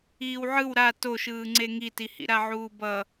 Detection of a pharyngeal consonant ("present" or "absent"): present